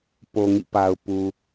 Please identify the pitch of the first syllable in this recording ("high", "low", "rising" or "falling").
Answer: low